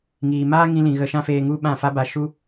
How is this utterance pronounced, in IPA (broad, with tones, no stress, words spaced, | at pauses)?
ŋiː˨maː˦ŋĩ˧lĩ˨ ɣə˧ʃã˦feː˧ ŋu˦ɓã˦˨fa˦ ba˧ʃu˦